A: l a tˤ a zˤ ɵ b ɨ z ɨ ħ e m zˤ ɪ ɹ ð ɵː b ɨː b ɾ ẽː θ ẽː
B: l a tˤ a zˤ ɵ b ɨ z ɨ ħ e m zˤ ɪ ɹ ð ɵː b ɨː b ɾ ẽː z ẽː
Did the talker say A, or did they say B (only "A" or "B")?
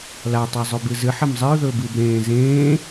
B